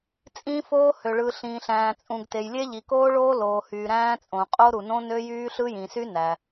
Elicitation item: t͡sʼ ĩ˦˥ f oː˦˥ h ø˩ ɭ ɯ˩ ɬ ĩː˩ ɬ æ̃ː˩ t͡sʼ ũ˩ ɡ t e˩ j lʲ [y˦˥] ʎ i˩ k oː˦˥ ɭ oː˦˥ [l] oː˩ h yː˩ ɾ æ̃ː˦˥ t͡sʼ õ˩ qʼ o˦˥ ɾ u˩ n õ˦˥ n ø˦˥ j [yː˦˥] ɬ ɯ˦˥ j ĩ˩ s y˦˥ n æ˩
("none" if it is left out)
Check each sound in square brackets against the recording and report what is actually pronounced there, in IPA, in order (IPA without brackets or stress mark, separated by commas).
e˦˥, l, yː˦˥